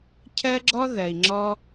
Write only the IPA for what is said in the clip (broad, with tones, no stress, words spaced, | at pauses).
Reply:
cʰɜ˦ɡ͡ǁɔ˦ ðɜ˨i̯ŋ͡ǁɔ˦